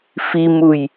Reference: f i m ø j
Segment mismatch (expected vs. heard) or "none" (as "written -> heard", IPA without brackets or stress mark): ø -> u